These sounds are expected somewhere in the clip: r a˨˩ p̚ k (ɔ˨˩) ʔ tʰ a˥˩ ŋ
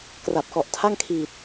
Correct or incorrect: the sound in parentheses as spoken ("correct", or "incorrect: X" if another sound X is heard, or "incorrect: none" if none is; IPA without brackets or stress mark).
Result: correct